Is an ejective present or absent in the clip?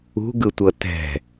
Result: absent